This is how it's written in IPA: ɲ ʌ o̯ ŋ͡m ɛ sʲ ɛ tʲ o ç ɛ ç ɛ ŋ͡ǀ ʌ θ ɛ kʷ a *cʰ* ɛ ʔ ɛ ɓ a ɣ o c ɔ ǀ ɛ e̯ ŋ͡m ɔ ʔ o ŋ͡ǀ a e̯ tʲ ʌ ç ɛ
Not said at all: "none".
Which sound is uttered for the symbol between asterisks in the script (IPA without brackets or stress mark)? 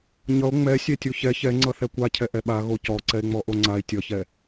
cʰ